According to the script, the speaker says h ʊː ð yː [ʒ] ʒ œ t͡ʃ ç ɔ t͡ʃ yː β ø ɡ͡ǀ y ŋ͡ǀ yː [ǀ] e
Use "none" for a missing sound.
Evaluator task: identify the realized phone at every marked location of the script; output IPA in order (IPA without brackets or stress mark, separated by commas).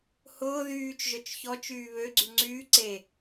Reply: t͡ʃ, ǀ